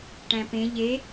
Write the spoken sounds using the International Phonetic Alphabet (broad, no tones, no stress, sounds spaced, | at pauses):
ʈ æ̃ p ẽ ʎ e